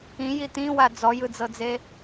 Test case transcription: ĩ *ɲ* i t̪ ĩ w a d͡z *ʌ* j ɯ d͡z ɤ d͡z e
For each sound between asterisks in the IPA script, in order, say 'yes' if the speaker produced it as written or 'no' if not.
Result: no, no

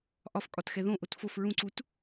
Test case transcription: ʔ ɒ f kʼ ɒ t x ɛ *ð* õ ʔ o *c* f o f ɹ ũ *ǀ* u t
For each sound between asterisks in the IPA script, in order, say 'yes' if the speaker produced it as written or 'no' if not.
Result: yes, no, yes

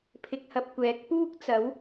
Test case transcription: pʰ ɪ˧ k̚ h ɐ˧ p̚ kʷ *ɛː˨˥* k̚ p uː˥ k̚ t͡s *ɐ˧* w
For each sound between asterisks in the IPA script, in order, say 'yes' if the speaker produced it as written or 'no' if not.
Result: yes, no

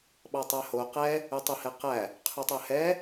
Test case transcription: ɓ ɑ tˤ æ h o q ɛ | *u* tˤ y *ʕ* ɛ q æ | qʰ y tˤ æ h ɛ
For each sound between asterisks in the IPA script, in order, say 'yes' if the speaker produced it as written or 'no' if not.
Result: no, no

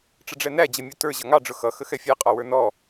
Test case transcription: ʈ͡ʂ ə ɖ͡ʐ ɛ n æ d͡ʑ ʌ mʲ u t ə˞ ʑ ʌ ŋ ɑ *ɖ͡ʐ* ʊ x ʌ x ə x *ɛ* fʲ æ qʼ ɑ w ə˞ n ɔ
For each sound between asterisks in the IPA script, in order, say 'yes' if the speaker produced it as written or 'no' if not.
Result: yes, yes

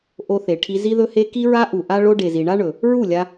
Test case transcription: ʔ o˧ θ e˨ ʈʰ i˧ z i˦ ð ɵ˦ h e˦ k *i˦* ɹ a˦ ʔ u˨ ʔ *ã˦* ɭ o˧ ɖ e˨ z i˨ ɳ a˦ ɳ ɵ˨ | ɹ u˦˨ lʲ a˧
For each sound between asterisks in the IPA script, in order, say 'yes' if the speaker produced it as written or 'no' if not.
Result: yes, no

